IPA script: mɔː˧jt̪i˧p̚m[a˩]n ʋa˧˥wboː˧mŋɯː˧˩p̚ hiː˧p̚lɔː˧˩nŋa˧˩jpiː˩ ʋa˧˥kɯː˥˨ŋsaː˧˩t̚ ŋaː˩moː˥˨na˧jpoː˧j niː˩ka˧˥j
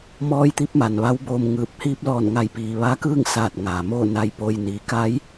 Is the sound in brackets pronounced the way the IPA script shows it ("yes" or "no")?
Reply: yes